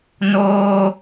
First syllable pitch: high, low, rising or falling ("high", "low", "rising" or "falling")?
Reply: high